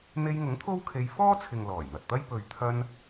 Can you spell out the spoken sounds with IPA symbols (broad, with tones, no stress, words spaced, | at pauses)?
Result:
n̪e˧jŋʊ˨˥ŋ t̪ʰo˥wkʰe˧j fɔː˥t͡sʰɪ˨ŋ lɔː˨˩jn̪ɐ˨t̚t̪ɐ˥j pɵ˨ɥt̪ʰɐ˧n